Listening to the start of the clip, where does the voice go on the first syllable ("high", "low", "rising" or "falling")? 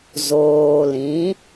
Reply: low